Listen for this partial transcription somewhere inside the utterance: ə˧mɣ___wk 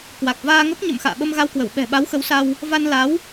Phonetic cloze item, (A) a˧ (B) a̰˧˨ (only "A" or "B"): A